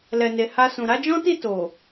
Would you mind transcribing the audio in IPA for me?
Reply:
l ɛ˨ n e˨ h a˧ s ũ˨ ɾ a˨˦ d͡ʒ ɔ̃˦ t i˦˨ t o˨

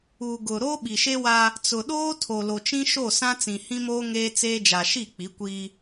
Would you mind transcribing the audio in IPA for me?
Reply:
u˨ ɡ ʊ˨ ɾ o˦ ɓ i˨ ʃ e˦ w a˦ | t͡s ʊ˨ ɗ oː˦ tʰ o˨ l o˨ t͡ʃ ĩ˦ ʃ o˦˨ s ã˦ t͡s ĩ˨ h ĩ˦ m oː˦ ŋ eː˦ t͡s eː˦ d͡ʒ a˨ ʃ i˦˨ k͡p i˨˦ kʷ iː˦

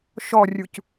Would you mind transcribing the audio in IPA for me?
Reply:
ʃ ɔ rʲ u c

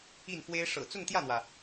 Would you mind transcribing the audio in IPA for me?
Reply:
i˥˩ n f w e˥ ɪ̯ ʂ ɤ̰˨˩ t͡s ʊ˥˧ ŋ t̪ j ä˥˩ n̪ w ä˩

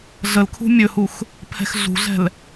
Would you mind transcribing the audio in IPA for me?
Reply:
ɮ ə l kʰ ṳ mʲ ɵ h u x | pʰ ɛ̤ x ɮ ṳ ɮ ɛ̤ l

